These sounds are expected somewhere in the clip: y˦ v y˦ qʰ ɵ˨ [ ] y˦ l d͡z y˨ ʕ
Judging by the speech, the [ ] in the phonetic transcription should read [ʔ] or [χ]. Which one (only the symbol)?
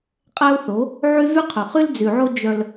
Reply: χ